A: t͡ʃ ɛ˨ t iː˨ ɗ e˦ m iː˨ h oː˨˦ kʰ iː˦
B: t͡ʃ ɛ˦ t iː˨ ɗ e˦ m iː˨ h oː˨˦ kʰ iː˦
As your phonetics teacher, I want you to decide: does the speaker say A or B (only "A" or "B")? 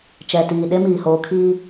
A